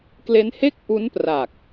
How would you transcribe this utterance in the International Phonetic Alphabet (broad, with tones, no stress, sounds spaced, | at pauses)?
k l e˦˥ n h e˥˩ k̚ ʔ u˦˥ n p r a˨˩ k̚